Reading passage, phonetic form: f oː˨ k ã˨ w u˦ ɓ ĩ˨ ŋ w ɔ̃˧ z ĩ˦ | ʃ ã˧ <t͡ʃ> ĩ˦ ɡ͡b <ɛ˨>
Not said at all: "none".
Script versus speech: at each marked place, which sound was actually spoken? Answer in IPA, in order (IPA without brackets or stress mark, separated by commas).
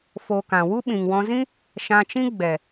t͡ʃ, ɛ˨